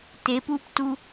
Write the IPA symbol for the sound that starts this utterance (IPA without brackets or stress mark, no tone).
t